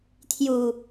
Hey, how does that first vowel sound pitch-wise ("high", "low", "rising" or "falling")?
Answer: low